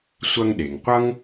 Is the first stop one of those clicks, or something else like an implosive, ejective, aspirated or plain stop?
implosive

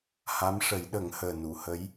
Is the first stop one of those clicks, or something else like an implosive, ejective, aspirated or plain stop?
implosive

